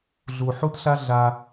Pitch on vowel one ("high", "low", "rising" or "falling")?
low